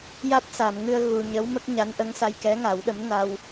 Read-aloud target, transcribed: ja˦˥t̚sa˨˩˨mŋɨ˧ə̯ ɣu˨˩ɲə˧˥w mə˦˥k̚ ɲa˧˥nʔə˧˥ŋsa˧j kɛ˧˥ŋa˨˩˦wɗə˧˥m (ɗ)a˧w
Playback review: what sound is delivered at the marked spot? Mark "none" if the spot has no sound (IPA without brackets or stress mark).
n